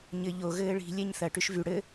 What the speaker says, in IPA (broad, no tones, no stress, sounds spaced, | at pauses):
ɲ ɘ ʎ o ɣ ɘː ɭ i̤ lʲ ɛ ɲ θ ɐ ʈ y ʃ v y ɽ ɘ